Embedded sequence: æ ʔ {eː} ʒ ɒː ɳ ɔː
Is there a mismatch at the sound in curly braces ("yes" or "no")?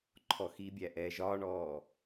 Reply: yes